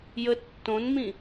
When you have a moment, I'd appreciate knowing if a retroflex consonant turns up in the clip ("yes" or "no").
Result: no